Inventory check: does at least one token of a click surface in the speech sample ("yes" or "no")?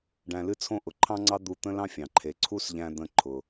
yes